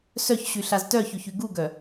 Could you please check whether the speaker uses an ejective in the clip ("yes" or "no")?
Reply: no